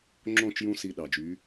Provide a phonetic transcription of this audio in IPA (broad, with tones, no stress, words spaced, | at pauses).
ŋ͡ǁõ˦˨t͡ʃjũ˧ si˧ɗɑ˨d͡ʒy˨˦